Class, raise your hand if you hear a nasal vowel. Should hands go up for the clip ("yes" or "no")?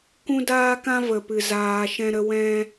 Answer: yes